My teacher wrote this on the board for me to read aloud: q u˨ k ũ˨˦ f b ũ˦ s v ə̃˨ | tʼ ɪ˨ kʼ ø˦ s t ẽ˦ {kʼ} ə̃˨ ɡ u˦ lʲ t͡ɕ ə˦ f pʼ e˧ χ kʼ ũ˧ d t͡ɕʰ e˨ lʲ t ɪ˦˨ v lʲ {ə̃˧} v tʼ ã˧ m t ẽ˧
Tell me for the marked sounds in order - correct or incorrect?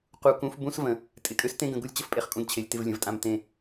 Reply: incorrect, incorrect

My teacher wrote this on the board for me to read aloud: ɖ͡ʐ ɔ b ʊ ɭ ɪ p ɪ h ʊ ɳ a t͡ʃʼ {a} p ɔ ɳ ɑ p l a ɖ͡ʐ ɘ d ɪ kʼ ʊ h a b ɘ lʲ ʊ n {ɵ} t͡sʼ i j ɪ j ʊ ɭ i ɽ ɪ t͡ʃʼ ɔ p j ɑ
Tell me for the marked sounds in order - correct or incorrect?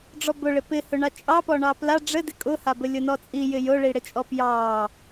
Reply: incorrect, incorrect

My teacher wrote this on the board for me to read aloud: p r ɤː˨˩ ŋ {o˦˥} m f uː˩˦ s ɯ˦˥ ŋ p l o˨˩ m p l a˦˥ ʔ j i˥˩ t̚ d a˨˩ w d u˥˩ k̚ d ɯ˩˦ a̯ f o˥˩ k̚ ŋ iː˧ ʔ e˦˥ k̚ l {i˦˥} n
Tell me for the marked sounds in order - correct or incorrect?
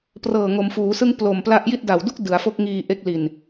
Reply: incorrect, incorrect

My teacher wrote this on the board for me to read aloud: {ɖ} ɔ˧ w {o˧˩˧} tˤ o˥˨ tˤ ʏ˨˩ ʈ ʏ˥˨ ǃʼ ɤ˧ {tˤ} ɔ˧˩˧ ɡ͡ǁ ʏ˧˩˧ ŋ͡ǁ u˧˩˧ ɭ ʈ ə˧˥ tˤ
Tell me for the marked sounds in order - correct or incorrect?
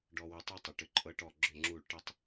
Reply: correct, incorrect, incorrect

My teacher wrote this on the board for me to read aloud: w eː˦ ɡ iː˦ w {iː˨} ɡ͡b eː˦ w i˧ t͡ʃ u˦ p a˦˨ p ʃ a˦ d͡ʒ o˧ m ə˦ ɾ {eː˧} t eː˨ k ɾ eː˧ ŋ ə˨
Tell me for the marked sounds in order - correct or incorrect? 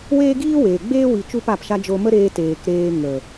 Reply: incorrect, correct

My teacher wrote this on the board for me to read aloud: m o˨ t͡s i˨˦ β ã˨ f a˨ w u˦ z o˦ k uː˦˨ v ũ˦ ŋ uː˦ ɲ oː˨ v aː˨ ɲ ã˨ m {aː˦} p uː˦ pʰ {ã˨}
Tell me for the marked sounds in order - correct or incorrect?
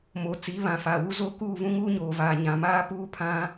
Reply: correct, incorrect

